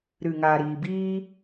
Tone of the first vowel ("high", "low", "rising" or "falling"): low